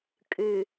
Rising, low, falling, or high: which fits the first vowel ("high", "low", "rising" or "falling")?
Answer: low